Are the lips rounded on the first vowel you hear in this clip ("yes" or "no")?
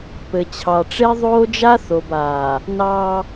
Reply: no